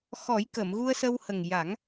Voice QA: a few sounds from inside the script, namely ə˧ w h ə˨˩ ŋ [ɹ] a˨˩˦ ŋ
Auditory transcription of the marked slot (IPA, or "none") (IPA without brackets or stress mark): j